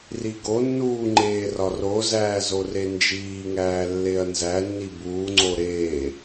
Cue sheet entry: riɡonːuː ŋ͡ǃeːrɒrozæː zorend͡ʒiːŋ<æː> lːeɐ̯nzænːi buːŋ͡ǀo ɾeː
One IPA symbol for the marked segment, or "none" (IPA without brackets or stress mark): æː